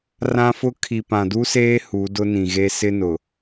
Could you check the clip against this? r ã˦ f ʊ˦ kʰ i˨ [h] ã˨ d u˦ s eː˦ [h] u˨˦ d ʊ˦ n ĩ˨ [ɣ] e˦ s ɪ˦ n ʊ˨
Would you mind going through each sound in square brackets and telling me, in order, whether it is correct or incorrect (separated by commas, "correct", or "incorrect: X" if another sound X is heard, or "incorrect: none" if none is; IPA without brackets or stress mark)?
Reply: incorrect: p, correct, correct